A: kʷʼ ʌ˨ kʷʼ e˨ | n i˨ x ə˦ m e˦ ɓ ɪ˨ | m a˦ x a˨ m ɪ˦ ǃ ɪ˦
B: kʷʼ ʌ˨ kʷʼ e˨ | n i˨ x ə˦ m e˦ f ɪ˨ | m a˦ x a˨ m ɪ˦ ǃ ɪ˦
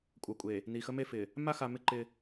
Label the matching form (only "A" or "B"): B